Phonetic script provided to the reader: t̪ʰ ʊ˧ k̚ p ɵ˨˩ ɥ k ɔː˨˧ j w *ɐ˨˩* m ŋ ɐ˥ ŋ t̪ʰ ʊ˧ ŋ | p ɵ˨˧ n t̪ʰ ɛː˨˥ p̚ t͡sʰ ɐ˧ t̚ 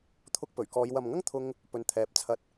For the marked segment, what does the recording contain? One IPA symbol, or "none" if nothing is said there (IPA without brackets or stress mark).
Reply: ɐ˨